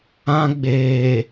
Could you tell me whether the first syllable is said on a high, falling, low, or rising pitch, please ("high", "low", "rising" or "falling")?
high